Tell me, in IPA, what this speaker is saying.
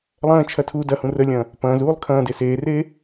lˠ ɐ̃ː t͡ʃʰ ɐ tʰ uː d ɐ h ũ r ə lʲ ɐ̃ː | p ɐ̃ː z uː lˠ kʰ ɐ̃ː d e s eː r eː

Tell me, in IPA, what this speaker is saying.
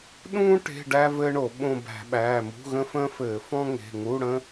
ɗ ũː˥ ʈ e̤˧˥˧ ɖ æ˥ v ɘː˥ ɳ o˧˩˧ ɓ õ˦˨ b æ̤˧˩˧ ɓ æː˩˧˩ m ṳ˧˥˧ ɣ ə̃˥ f ə̃ː˥ f ɘː˧˩˧ f ɔ̃˥ ŋ e̤˩˧˩ ŋ u˧˥˧ ɽ ə̃˥

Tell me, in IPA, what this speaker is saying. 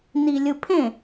n i lʲ ɯ pʰ ẽ

